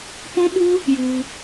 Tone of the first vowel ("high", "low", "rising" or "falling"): high